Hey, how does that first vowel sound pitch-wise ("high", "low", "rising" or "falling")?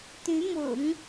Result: rising